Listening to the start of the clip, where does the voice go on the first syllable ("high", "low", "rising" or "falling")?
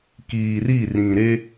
low